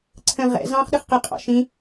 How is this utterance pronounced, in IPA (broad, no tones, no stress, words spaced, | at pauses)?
ǀʰə̃ ʁɛ̰ zɑ̃χ ɗəχqɪ qʼɑ̰ʃĩ